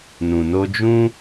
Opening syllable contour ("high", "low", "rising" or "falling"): low